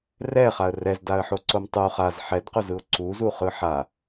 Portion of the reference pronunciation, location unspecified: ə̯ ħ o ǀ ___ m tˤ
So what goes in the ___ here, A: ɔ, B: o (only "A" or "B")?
B